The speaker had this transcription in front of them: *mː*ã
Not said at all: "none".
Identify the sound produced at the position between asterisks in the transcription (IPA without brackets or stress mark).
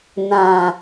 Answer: n